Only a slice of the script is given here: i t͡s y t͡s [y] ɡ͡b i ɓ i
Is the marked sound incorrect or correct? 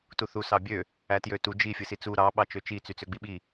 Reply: incorrect